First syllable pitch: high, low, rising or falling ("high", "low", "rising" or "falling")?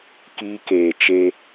high